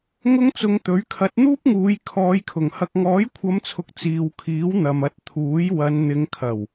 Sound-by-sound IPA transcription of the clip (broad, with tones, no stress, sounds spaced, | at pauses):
ŋ ʊ˥ ŋ t͡s ʊ˧ ŋ t̪ ɵ˨˥ ɥ kʰ ɐ˨˥ t̚ n̪ uː˥ p̚ ŋ uː˨˧ j kʰ ɔː˨˧ j kʰ ʊ˨˩ ŋ h ɐ˨ k̚ ŋ ɔː˨˥ j kʷʰ ɐ˨˧ m t͡sʰ ʊ˨ k̚ t͡s iː˨ w kʰ iː˨˥ w n̪ ɐ˨ m ɐ˨˥ t̚ t̪ʰ uː˨˥ j w ɐ˨˧ n n̪ ɪ˨˧ ŋ kʰ ɐ˨˩ w